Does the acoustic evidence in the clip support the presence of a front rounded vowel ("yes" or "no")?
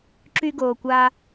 yes